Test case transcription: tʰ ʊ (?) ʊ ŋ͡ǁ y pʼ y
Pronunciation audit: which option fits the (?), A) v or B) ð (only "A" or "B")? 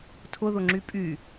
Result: B